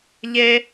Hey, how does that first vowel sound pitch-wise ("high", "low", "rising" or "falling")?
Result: high